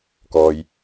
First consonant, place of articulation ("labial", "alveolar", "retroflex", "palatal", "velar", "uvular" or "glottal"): velar